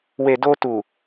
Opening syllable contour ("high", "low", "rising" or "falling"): low